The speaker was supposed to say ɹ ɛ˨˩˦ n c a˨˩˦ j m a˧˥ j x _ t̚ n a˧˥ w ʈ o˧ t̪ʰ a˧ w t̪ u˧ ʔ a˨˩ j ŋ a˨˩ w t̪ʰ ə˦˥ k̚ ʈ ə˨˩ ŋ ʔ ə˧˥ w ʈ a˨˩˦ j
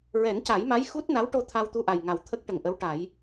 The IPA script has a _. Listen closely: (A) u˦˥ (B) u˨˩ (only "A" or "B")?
A